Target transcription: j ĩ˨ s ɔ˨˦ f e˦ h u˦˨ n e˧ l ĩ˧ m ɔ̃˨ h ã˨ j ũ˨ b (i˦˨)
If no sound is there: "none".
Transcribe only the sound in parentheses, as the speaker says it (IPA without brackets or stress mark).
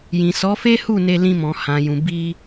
i˧